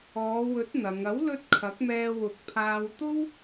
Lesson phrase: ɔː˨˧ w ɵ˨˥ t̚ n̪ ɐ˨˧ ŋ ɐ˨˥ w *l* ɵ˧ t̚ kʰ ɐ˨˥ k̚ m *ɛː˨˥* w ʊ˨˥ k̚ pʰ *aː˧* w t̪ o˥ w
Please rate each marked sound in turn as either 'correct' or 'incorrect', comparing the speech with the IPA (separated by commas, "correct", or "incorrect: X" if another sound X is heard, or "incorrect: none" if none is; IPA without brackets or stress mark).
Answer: correct, incorrect: ɛː˧, correct